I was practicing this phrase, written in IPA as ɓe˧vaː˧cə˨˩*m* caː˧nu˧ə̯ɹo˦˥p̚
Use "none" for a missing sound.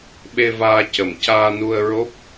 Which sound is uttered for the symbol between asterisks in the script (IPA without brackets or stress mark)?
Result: m